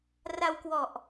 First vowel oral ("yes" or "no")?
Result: yes